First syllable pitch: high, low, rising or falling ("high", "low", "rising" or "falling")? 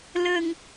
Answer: low